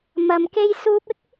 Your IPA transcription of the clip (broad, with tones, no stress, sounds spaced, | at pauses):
m ɐ˨ m k e˧ j s uː˧ p̚ ɪ˥ k̚